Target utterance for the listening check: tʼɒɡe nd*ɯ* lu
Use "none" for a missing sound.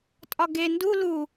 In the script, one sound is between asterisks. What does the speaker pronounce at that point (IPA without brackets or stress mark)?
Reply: u